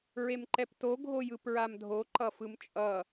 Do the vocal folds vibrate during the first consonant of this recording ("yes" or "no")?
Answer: yes